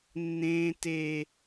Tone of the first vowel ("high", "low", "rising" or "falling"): high